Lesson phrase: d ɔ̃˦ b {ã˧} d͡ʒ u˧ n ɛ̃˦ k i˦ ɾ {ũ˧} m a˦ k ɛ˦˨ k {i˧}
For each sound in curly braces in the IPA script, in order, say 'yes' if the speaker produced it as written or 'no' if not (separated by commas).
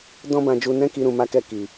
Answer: yes, yes, no